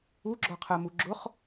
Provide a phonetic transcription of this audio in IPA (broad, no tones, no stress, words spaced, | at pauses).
uɡ͡ǁɔqʰɜmu ɡ͡ǁʊχ